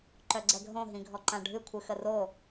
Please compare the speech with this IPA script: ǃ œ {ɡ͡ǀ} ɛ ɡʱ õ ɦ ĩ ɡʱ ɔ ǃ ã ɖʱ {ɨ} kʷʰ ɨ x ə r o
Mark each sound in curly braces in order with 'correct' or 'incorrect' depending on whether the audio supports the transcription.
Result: correct, correct

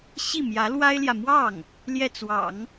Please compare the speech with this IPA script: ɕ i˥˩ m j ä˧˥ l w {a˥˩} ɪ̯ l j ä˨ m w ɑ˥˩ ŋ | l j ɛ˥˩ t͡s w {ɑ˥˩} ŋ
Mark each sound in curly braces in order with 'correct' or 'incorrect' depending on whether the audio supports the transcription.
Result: incorrect, incorrect

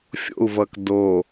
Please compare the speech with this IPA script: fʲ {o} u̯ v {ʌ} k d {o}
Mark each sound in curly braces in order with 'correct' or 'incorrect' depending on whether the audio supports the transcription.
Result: incorrect, correct, correct

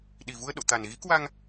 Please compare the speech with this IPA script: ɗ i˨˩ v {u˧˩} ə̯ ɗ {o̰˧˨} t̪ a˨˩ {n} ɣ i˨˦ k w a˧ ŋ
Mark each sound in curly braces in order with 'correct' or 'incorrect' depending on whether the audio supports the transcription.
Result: incorrect, correct, correct

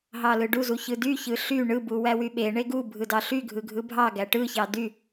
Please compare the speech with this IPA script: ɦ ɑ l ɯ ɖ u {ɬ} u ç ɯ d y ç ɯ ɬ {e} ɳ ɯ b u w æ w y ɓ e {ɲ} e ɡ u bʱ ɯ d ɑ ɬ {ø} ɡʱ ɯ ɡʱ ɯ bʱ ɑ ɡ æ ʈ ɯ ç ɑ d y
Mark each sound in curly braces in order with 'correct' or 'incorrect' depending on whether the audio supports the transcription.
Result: incorrect, incorrect, incorrect, incorrect

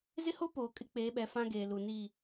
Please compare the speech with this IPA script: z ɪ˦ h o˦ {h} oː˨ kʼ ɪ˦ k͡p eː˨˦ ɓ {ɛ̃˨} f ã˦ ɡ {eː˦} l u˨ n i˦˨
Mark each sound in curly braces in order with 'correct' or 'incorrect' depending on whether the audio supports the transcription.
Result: incorrect, incorrect, incorrect

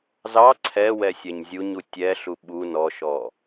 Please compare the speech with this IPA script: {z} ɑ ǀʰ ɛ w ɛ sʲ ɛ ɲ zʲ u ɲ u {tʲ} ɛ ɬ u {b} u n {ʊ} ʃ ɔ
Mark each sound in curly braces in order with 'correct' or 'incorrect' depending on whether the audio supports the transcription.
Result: correct, correct, incorrect, incorrect

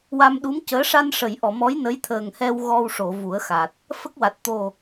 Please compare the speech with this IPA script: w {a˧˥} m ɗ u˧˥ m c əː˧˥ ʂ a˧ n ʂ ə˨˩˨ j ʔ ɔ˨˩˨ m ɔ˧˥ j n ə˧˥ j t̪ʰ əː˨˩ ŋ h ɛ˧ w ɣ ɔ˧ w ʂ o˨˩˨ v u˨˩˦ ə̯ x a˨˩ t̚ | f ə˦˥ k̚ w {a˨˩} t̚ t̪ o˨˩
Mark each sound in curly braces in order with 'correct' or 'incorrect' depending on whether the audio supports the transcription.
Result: incorrect, correct

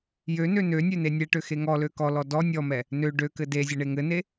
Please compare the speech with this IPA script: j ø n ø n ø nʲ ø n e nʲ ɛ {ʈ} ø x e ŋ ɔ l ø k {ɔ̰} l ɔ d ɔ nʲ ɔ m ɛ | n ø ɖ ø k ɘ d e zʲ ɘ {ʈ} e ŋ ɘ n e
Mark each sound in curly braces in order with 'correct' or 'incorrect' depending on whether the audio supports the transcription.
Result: correct, incorrect, incorrect

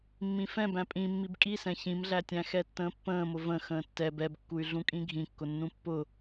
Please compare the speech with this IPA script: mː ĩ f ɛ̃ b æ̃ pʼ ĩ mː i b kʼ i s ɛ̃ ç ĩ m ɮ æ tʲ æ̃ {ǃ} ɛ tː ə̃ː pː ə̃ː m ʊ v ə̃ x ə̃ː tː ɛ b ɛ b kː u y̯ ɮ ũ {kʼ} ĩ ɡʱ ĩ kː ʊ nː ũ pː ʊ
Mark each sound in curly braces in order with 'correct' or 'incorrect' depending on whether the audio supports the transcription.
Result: incorrect, correct

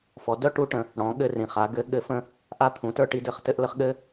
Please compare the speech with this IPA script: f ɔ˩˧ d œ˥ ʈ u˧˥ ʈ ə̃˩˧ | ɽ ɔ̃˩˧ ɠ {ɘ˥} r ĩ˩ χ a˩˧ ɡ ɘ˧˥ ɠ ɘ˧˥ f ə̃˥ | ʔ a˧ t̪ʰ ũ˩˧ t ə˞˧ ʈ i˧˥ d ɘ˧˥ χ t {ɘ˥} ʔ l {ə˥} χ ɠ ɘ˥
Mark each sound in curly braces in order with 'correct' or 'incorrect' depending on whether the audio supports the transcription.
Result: incorrect, correct, correct

